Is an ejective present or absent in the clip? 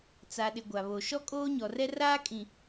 present